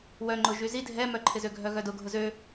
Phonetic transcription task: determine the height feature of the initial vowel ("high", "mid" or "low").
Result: mid